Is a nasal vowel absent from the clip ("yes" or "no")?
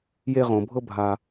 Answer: no